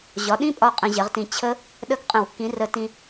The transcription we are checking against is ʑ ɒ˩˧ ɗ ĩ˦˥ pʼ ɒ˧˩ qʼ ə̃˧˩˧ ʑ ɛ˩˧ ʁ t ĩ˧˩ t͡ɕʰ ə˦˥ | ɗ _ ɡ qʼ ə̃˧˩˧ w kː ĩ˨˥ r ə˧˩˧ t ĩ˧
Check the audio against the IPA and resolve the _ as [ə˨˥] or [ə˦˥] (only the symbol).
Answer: ə˦˥